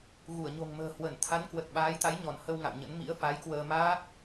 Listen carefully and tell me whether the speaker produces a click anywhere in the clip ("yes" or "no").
no